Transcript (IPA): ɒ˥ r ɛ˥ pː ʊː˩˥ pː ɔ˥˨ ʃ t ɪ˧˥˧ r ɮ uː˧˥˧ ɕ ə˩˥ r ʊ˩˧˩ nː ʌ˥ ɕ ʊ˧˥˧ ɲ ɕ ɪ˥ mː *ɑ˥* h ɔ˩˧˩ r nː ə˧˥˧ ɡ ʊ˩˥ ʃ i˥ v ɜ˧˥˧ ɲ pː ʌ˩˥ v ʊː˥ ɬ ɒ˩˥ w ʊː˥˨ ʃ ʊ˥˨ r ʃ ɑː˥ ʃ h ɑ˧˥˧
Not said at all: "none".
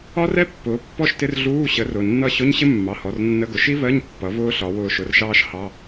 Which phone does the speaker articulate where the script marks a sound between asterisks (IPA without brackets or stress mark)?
ɑ˩˧˩